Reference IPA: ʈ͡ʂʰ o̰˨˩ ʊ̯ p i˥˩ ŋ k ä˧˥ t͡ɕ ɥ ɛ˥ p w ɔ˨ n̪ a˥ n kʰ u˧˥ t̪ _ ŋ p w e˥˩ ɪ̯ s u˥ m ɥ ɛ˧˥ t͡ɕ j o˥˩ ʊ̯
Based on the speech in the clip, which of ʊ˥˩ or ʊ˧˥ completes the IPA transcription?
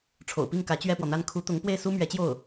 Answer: ʊ˧˥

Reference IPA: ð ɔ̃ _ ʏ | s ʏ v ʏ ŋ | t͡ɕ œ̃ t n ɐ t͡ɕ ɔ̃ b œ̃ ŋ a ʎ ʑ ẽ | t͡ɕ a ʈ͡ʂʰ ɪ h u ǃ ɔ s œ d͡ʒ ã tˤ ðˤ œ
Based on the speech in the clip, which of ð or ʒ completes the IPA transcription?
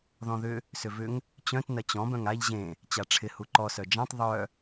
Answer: ð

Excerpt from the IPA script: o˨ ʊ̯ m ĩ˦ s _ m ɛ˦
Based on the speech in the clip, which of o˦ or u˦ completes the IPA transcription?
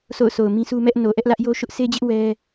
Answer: u˦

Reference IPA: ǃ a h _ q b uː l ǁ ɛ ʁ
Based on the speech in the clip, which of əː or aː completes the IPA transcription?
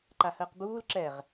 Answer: əː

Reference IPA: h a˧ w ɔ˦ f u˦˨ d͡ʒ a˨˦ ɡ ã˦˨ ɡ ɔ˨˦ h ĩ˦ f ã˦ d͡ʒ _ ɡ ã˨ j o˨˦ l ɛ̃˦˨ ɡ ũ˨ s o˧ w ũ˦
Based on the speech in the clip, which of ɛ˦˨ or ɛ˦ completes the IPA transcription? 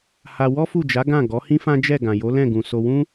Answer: ɛ˦˨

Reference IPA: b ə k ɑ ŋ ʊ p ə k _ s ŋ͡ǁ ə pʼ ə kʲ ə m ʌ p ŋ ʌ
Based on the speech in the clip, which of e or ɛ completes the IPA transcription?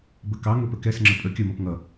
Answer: ɛ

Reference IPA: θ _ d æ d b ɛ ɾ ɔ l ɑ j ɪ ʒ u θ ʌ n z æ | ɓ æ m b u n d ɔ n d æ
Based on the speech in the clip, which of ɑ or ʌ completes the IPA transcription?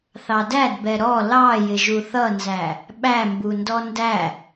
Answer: ɑ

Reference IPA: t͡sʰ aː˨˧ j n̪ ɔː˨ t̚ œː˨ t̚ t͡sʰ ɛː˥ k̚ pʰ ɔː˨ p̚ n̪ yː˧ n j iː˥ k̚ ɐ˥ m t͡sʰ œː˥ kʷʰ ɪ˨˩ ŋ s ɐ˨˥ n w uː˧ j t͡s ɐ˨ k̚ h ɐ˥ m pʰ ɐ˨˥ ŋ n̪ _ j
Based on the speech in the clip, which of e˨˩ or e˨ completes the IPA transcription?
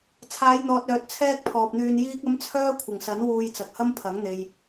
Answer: e˨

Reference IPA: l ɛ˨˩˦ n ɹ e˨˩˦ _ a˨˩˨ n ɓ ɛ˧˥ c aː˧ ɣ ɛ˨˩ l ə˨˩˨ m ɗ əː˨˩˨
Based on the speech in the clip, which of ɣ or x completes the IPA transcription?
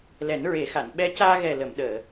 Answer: x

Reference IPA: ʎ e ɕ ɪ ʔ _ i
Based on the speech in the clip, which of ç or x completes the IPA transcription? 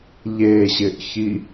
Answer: ç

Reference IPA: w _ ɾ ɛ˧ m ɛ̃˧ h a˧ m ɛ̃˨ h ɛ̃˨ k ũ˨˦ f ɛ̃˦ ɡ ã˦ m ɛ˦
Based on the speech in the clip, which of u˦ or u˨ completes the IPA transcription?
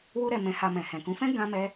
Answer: u˦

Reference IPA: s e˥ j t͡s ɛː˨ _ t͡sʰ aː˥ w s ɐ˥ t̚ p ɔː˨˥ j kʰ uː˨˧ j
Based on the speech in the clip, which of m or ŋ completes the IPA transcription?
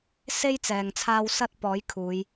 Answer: ŋ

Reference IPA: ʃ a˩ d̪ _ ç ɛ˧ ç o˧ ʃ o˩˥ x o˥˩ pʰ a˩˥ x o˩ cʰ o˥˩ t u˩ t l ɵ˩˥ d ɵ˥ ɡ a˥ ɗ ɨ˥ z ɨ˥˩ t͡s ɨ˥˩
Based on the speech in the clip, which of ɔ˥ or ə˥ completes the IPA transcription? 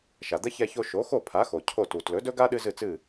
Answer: ə˥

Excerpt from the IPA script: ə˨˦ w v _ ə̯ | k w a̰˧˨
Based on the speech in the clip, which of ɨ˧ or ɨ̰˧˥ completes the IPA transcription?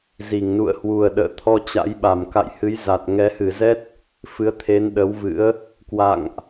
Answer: ɨ̰˧˥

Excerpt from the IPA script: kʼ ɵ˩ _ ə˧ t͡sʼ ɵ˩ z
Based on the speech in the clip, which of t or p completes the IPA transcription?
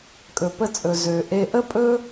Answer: p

